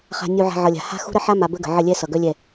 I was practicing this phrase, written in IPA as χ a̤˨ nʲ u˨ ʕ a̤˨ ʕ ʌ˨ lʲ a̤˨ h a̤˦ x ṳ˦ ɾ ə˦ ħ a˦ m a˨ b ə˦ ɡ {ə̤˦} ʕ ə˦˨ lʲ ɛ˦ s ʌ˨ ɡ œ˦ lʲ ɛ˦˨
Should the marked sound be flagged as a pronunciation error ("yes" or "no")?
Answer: yes